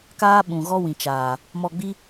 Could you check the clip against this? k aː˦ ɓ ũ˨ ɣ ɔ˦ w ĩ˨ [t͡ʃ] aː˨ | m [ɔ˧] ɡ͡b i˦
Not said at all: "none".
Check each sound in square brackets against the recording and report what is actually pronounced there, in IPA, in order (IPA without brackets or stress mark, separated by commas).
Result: t͡ʃ, ɔ˧